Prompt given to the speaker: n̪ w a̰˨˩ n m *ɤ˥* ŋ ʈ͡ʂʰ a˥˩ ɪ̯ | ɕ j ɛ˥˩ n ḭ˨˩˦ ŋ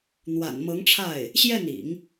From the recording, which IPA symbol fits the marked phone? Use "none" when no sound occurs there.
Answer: ɤ˧˥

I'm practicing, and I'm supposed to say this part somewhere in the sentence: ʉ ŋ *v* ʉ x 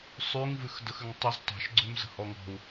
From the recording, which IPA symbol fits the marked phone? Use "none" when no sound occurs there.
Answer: v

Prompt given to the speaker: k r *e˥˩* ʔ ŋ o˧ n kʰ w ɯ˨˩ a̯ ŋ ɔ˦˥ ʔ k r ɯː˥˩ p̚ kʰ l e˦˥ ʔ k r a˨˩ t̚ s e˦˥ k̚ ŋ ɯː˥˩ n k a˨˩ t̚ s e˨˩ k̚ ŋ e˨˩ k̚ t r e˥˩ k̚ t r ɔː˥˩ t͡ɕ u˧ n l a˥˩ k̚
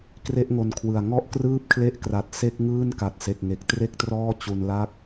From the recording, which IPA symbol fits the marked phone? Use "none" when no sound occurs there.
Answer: e˥˩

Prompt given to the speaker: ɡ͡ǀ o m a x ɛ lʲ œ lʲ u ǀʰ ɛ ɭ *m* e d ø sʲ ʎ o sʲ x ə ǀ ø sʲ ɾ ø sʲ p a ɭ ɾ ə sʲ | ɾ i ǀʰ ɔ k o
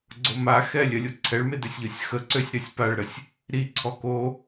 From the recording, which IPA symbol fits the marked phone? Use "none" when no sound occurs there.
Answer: m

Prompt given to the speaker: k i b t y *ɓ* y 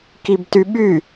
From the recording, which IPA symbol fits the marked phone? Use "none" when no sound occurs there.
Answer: ɓ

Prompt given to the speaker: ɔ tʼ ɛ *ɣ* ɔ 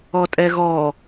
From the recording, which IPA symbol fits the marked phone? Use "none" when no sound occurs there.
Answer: ɣ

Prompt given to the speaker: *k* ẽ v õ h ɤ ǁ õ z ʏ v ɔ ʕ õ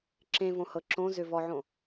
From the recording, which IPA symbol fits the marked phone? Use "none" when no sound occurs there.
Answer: ǁ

